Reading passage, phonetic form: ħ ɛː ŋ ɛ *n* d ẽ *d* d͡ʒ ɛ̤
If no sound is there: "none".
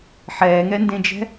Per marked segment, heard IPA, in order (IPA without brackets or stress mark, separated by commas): n, none